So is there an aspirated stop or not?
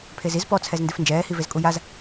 yes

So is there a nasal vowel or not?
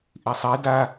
no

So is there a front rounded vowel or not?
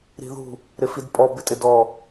no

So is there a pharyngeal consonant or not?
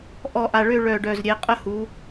no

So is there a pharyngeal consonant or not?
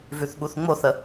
no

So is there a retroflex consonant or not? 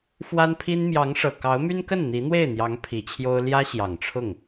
yes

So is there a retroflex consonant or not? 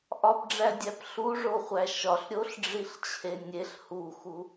yes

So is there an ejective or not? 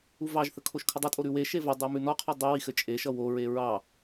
yes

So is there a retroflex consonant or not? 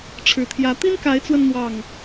yes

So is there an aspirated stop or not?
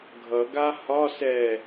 no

